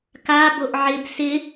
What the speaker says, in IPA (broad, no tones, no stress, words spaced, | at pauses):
ka boʔʕɪb sɪ